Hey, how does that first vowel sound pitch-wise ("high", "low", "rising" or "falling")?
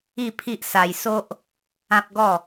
falling